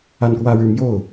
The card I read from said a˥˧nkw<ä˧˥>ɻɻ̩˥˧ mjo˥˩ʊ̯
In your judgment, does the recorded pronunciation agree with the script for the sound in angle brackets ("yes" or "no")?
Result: no